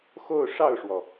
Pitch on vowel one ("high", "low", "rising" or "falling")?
falling